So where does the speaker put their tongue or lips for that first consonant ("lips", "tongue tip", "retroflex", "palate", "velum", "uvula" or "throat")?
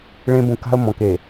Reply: retroflex